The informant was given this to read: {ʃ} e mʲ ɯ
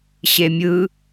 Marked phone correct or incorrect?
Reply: incorrect